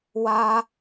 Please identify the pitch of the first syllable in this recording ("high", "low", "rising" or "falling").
high